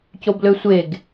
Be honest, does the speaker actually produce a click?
no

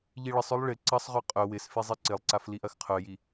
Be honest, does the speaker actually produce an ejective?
yes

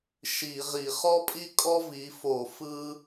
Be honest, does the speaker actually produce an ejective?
yes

